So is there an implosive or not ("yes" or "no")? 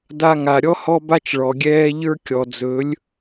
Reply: no